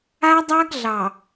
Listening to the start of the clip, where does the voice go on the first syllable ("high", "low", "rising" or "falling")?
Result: high